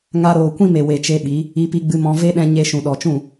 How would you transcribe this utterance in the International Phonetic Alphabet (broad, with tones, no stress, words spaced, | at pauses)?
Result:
ŋa˧ɾoː˨kʷĩ˦me˨ we˧t͡ʃe˦ɓi˨˦ | i˧pi˧ɡ͡bɨ˧mɔ̃˧ ve˦ɗɛ̃˧ ɲe˧ ʃũ˨ɗɔ˨t͡ʃũ˦˨